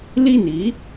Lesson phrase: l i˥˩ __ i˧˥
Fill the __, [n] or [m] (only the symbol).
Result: n